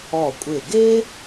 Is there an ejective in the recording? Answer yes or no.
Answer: yes